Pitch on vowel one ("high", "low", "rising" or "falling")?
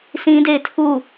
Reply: high